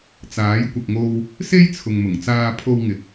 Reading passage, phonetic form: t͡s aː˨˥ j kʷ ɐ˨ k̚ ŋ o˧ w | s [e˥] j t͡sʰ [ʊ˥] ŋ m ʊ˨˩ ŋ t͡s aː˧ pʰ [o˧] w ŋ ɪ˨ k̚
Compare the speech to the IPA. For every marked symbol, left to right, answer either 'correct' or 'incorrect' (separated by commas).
correct, incorrect, correct